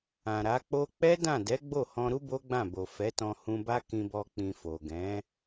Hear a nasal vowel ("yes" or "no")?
yes